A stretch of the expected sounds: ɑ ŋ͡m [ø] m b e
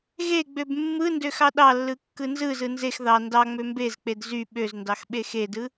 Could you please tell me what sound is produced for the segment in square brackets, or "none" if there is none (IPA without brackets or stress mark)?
ø